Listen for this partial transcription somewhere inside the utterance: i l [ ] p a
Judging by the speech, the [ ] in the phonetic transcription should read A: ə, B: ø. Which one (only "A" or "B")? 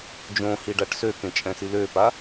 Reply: B